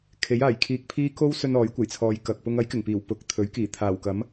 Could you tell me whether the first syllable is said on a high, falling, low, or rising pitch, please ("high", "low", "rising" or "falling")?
rising